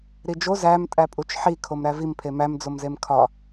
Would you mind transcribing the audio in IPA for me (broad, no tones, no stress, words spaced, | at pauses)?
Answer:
ɾid͡ʒo zæm tʼæpʼut͡ʃħi kʰomɾævim pʰemæm d͡zomzemkʰɒ